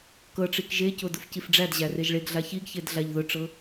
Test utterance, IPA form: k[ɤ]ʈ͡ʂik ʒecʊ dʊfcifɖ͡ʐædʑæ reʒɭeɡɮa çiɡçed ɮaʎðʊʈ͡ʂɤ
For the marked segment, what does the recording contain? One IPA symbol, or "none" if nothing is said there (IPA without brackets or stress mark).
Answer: ɤ